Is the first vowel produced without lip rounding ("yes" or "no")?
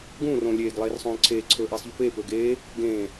no